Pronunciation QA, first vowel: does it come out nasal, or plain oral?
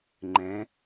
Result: nasal